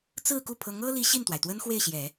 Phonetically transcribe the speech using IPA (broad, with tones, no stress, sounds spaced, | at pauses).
t͡s ɹ̩˥˧ k u˥˩ pʰ ɤ˧˥ ŋ ɤ˥ l i˧˥ ɕ i˥˩ n t̪ w a˩ ɪ̯ t̪ w ə˥ n x w e˥˩ ɪ̯ ɕ j ɛ˨˩˦